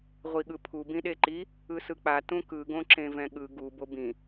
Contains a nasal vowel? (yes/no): yes